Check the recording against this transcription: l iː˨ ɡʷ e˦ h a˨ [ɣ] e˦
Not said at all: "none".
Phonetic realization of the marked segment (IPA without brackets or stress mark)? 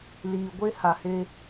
h